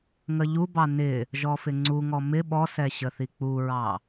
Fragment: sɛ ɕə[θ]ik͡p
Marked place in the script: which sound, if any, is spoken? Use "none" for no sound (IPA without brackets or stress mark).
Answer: θ